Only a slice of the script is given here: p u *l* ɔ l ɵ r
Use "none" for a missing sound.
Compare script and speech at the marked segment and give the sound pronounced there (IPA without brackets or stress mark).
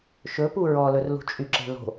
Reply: ɹ